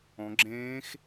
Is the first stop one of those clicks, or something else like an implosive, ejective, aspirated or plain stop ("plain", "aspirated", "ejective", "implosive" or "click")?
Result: click